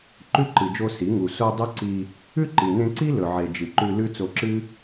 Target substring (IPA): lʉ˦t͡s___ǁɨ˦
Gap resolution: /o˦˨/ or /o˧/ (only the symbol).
o˧